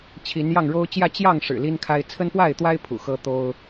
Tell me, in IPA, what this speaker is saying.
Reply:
t͡ɕʰ i˨˦ n j ɑ˥˨ ŋ ɻ o˦ ʊ̯ t͡ɕ j ä˥˨ t͡ɕ j ɑ˥˨ ŋ ʂ ɻ̩˨˩ l i˦ n kʰ a˦ ɪ̯ t͡sʰ ə˦ n p w a˥˨ ɪ̯ t̪ w a˦ ɪ̯ pʰ ṵ˨˩ x ɤ˦ t̪ o˦ ʊ̯

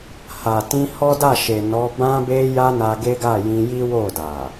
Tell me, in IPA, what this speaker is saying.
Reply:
h a˨ t ĩ˧ h ɔ˦ d a˦˨ ʃ e˨ n ɔ˨˦ b ã˧ b e˧ j a˧ n a˧ ɡ e˦ ɡ a˦˨ j ĩ˧ j i˦ w o˦˨ d a˨

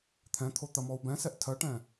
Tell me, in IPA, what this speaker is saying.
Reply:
t̪ʰ ɛ̃ t̪ʰ o t̪ ɐ m ɔ u̯ b ɛ̃ s ɛ ʔ tʰ ɜ ʈ ɛ̃

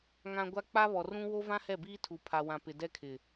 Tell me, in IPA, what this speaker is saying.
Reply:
ŋ ã˨ ɡʷ a˦ k͡p a˦ β ɔ˨ r ũ˦ w o˦ v ã˦ h ɛ˦˨ b iː˦ tʰ u˨ pʰ a˨ w ã˨ p ɪ˨ d ɛ˦ kʰ ɪ˨

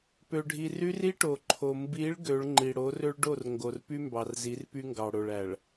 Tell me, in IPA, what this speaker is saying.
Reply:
p ø˨ ɖʱ i˨ r y˦ r i˦ ʈ o˨ ǃʰ o˨ m b i˨˦ ɭ ɡ ø˨˦ ɭ ŋ͡ǃ i˨ ɽ o˨˦ r ø˦ ɭ ɖ o˦˨ r ŋ ɡ o˨ r p y˦ m b ɑ˨ r z i˨˦ r p y˦ ŋ ɡ ɑ˨ ɽ o˨ ɭ æ˨ ɭ

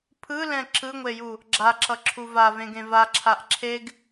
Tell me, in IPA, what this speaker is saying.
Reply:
pʰ ɯ l ɛ̃ ǁ ɯ ŋʷ e j u | ɡ͡ǁ a ǁ ʌ ǁʰ u v a v ẽ ɡ ẽ v a ǁʰ a ʔ ǁʰ e ɡ

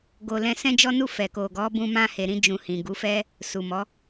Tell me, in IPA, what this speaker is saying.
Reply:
ɡ o˧ l ɛ̃˧ s ɛ̃˦ d͡ʒ ɔ˦ n u˦˨ f ɛ˨ k o˨ ɡ ɔ˨˦ b ũ˧ m ã˧ h e˨ ɾ ĩ˧ d͡ʒ ũ˧ h ĩ˨ ɡ u˨˦ f ɛ˦ | s u˨ m ɔ˨˦

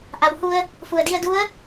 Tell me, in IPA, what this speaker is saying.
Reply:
ʔ a˩ w h u˧ ə̯ | f u˩ ə̯ d i˧ ə̯ d u˧˥ ə̯

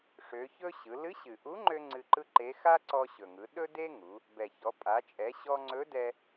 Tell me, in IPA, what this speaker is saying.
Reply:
ʂ ø˩˧ ç ɵ˥ ɕ ɯ˩˧ l ɨ˧˥ ɕ ɨ˩ ʔ u˧˥ ŋ͡ǃ ø˧ ŋ͡ǀ ɨ˧ ǃ ɯ˥ ǃ e˧˥ x a˥ ǀ ɔ˧ ɕ ɵ˩ ŋ ɯ˩˧ ɗ ɵ˥ d e˥ ŋ u˩˧ | b ɛ˩ ç ɔ˩˧ pʼ a˩˧ t͡ʃʼ ɛ˩˧ ɕ ɔ˧ ŋ͡ǀ ɵ˧˥ d ɛ˧

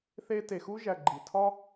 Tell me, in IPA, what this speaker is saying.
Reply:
θ e˦ t e˨ x u˥ ʒ æ˨ ɡ͡ǃ i˩ tʰ ɒ˥

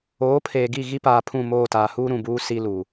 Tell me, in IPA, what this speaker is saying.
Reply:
oː˨˦ pʰ eː˨ ɡ i˦˨ ɣ i˦ p aː˨ pʰ ũ˦˨ m oː˦˨ t aː˨ h uː˦ ɾ ũ˨ b uː˦ s i˦ l u˨

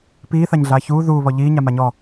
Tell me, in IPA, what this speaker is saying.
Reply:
p iː θ a ɲ ɮ aː ç uː ð uː β ɔ ʎ iː ɲ a m a ɲ ɔ

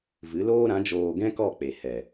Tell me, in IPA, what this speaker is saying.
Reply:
v ɨ˨˦ l oː˦ ɾ ã˨˦ d͡ʒ oː˧ ɡ ɛ̃˦ k ɔ˦˨ k͡p e˨ h ɛ˨

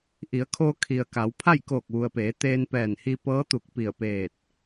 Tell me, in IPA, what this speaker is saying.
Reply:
ʔ i˩˧ ə̯ kʰ oː˧ kʰ i˩ ə̯ k a˩˧ w pʰ a˥˨ j k oː˧˩ k̚ ʋ u˩ ə̯ p eː˩˧ t̪ eː˧ n p ɛː˧˩ n h i˧ p ɤː˧˥ t̪ u˧˩ k̚ p i˧˩ ə̯ p eː˧˩ t̚

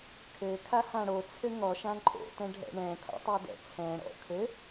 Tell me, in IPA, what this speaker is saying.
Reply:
kʰ ɘ kʰ a h ã ɽ o t͡sʰ ɘ ŋ ɔ ʃ ã ǃʼ o̰ t ɛ̃ ɖʱ ɛ̰ ɳ ɛ̃ kʰ o̰ tˤ ɛ d ɛ̰ t͡sʰ ɛ̃ ɽ ɔ̰ kʰ ɘ

